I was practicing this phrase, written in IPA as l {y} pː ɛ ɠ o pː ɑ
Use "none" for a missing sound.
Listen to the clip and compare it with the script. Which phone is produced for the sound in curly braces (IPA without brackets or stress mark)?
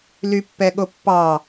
y